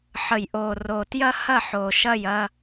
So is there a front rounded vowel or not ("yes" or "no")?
no